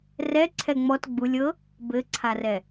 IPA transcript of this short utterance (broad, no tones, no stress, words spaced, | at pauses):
rɛǀʰɛ ŋ͡mɔt ɡ͡bulʲ ɤ | bɘǀʰarɛ